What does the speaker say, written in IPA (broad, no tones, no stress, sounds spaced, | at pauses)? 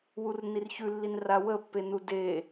w u r n i r ç ʉ lː i n r a w ə pː e n u d e